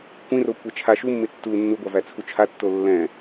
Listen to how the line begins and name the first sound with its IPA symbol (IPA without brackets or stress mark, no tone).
kʷ